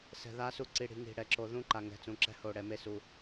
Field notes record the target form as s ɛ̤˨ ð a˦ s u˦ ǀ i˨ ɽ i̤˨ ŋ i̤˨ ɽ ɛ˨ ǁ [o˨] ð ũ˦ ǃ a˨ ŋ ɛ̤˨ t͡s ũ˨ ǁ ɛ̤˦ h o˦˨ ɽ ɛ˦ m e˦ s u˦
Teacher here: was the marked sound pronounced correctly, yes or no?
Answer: yes